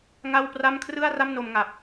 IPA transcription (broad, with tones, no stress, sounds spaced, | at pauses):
ŋ a˥˩ w p r a˥˩ m kʰ r ɯ˥˩ a̯ r a˥˩ m n o˧ m ŋ a˨˩ p̚